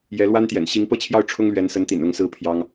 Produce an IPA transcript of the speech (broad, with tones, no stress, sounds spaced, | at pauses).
j ɛ˧˥ l w a˥ n t̪ j ɛ̰˨˩ n ɕ i˧˥ ŋ p ɤ˥˧ t͡ɕʰ j ɑ˥˩ ʊ̯ ʈ͡ʂʰ ʊ˥ ŋ l ɥ ɛ˧˥ n s ə˧˥ n t̪ ḭ˨˩ n ʊ˥˩ ŋ s ɹ̩˥ pʰ j ɑ˥ ŋ